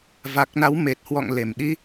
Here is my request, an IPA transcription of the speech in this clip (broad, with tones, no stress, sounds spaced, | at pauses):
v a˨˩ k̚ n a˨˦ w m e˨˩ t̚ h w ɔ̰˧˨ ŋ l e˧˩ m ɗ i˧